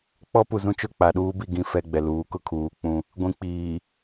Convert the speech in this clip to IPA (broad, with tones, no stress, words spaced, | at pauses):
k͡pɔ˦pu˨zũ˦ t͡ʃʊ˦˨ k͡pa˨ɗuː˦bi˦˨ɡĩ˦ fɛ˦ɡ͡bɛ˨ luː˨˦kʊ˦kʰuː˨k͡pũ˦ | ɡʷĩ˨k͡piː˨